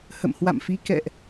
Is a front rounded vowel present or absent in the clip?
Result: absent